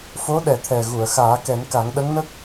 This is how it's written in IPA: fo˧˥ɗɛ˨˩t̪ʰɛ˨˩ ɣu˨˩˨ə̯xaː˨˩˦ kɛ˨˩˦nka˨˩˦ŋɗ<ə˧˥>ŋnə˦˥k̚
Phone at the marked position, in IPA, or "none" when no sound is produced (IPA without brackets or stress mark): ə˧˥